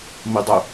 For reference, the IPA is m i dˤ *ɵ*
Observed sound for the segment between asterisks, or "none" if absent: ɵ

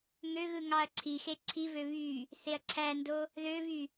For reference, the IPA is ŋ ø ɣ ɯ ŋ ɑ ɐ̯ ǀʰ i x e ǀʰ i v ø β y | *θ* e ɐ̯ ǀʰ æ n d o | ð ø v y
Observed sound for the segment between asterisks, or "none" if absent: θ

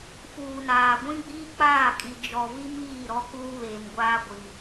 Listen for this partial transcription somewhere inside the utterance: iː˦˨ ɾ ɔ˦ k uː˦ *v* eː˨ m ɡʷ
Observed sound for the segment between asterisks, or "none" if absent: β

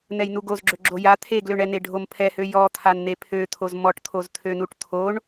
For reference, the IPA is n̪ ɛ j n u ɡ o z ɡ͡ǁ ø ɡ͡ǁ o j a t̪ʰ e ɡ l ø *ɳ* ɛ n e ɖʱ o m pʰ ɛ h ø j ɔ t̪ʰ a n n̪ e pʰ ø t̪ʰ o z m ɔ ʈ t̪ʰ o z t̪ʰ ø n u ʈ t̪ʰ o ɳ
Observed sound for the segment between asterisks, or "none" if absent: ɳ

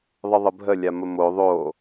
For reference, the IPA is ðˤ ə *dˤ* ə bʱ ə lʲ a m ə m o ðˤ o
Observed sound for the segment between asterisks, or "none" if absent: ðˤ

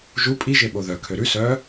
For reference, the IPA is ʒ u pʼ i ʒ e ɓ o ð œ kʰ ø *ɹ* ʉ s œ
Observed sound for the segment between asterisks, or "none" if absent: ɾ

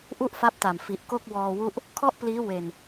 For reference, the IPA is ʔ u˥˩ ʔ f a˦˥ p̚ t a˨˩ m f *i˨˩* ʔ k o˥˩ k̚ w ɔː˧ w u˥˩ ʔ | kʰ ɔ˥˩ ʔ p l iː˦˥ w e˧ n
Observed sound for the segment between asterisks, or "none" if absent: i˨˩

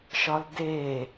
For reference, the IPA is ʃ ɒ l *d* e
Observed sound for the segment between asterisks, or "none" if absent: d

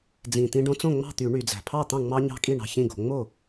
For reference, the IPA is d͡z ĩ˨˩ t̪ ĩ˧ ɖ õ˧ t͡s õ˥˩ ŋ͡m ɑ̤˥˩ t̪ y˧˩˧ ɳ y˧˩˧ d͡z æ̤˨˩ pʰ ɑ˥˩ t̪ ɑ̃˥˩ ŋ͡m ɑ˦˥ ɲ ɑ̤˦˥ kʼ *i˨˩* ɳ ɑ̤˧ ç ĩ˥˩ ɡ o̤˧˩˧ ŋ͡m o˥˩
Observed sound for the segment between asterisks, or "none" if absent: i˥˩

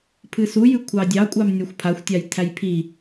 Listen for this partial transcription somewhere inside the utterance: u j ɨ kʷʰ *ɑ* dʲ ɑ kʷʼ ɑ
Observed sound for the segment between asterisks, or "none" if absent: ɑ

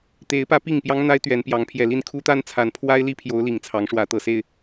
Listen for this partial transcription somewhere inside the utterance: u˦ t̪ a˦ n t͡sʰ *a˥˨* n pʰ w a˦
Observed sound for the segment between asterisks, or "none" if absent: a˨˦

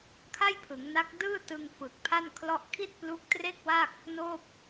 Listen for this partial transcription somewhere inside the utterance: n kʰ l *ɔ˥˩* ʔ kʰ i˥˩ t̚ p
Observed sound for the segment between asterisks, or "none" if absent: ɔ˥˩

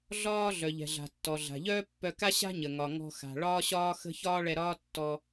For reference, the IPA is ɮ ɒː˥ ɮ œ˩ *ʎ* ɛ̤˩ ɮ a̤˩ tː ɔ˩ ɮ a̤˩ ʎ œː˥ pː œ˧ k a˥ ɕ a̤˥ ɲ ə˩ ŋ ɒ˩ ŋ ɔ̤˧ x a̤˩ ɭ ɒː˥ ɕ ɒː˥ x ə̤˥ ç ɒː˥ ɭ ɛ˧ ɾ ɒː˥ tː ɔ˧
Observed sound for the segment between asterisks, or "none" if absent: ʎ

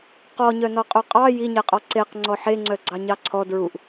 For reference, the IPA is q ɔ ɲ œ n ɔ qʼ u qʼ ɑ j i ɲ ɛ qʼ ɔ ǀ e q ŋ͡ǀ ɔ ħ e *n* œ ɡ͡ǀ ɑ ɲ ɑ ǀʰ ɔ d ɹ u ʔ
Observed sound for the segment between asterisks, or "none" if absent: ŋ͡ǀ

